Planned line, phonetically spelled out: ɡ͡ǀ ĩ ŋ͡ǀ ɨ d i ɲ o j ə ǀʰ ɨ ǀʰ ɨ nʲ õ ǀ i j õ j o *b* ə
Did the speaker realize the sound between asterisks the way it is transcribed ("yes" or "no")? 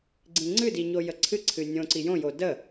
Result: no